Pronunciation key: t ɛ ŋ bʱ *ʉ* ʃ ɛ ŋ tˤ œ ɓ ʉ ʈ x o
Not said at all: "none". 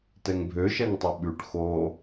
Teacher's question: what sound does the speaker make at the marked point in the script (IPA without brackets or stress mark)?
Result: ø